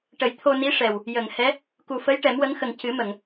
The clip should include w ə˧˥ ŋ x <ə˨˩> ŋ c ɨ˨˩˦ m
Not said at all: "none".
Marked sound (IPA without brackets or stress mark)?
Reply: ə˨˩